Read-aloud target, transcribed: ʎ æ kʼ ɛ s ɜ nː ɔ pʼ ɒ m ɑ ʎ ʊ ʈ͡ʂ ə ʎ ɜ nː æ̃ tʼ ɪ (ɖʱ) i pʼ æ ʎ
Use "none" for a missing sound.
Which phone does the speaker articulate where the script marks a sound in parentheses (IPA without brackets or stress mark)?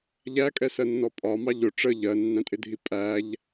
dʱ